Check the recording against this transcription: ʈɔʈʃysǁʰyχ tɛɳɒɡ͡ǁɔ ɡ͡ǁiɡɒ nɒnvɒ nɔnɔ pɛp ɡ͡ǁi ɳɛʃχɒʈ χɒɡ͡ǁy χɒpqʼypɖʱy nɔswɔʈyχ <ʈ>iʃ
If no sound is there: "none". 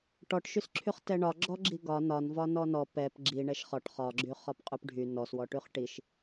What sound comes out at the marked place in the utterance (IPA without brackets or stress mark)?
ʈ